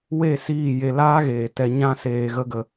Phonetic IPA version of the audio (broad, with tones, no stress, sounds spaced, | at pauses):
w e˦˨ s iː˦˨ j e˧ l aː˦ ɣ eː˨ t ɛ˧ ɲ ã˦ s eː˧ ɣ ə˦ ɡ ə˧